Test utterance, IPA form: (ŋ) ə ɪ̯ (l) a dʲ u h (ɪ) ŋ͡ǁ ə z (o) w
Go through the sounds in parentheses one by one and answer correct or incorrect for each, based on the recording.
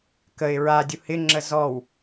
incorrect, incorrect, correct, incorrect

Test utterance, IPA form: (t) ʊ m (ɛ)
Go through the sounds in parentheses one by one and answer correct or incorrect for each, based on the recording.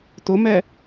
correct, correct

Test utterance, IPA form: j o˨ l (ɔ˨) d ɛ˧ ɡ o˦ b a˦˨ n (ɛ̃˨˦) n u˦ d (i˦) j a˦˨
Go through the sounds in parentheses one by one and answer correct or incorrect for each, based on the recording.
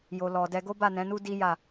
correct, correct, correct

